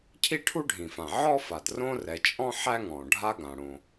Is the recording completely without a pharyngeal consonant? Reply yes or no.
no